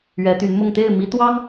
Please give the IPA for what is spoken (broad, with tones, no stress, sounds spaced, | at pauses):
ɥ ɛ˧˥ t̪ y˧˥ n m ʊ˥˧ ŋ t̪ e˥˩ ɪ̯ m i˧˥ t̪ w ɑ˥ ŋ